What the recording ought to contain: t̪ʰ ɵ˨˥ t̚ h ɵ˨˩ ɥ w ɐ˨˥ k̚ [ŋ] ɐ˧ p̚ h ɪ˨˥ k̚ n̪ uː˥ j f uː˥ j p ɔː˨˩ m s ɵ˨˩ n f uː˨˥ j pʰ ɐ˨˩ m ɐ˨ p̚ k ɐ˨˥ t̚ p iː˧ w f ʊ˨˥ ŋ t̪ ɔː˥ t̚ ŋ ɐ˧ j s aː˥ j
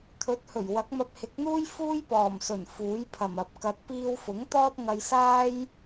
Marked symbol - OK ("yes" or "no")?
no